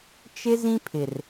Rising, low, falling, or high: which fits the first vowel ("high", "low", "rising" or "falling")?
high